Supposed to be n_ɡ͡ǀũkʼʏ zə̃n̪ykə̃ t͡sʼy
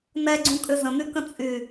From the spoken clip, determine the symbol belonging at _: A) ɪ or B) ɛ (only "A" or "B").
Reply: B